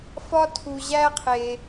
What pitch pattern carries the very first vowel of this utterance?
high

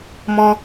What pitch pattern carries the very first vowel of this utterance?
high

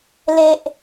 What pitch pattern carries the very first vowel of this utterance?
high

